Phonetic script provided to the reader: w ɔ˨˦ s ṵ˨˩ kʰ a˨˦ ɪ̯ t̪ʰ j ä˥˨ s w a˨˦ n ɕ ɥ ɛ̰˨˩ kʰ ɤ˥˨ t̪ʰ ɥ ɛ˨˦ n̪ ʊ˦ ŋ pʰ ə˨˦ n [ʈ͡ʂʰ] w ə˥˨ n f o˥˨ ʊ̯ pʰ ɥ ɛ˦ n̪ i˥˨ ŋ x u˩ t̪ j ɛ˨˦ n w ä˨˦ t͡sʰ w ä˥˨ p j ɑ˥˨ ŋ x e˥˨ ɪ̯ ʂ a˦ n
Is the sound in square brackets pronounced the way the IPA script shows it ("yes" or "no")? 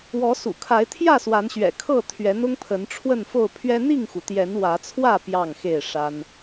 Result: yes